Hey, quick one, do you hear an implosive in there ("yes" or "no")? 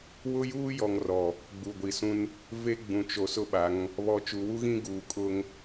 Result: yes